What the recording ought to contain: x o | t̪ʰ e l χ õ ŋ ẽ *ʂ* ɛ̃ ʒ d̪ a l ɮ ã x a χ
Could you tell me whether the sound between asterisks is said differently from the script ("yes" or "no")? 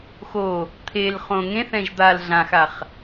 yes